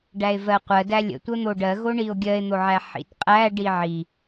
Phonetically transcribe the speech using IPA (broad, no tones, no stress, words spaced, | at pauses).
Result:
ɖæe̯vɜqʷɜdæ lʲə̰tʷə n̪oɖɜɣo ɳio̯ɡʲɜe̯n̪oʕæ ħḭtqʼæ ɖiʕi